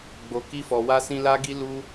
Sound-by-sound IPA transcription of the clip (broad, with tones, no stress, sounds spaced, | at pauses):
ɡ͡b o˨ k i˧ f ɔ˨ w a˧ s ĩ˧ l a˧ ɡ i˧ l u˧